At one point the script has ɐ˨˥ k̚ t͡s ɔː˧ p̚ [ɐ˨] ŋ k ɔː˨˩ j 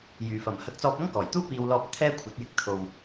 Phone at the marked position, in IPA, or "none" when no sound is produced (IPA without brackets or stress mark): ɐ˥